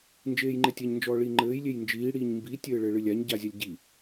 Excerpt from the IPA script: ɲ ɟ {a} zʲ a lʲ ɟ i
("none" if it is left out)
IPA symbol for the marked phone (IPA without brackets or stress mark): a